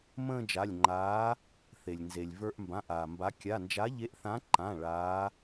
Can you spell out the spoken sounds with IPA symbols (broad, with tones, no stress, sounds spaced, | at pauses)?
m ə̃ː˥˧ d͡ʒ a˩˧˩ lʲ ŋ͡ǃ aː˨˥ | θ e˩ lʲ n z e˩ lʲ v ə˞˧ ʔ m b ã˩˧˩ ʔ aː˩ m b a˨˥ kʲ a˩˧˩ n d͡ʒ a˨˥ ʎ e˨˥ ʔ θ ã˨˥ ǃ ã˩˧˩ ɭ aː˨˥